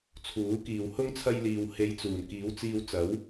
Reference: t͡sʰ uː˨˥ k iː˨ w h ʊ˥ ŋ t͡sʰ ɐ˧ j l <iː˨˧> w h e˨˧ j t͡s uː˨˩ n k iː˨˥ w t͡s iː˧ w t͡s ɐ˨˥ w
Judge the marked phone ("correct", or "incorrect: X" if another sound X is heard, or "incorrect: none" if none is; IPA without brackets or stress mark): incorrect: iː˨